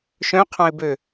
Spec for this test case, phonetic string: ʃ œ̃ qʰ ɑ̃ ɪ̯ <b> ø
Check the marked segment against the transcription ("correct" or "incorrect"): correct